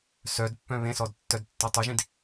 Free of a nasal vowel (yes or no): no